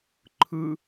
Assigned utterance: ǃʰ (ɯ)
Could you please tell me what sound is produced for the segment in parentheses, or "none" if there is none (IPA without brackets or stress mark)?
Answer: ɯ